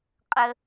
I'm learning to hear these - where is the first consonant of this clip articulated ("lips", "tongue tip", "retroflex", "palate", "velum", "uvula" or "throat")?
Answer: uvula